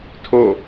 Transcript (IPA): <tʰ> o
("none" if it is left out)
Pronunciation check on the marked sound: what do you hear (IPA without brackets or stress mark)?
tʰ